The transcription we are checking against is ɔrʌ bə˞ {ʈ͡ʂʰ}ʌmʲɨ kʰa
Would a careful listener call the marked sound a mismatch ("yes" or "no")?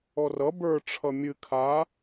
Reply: no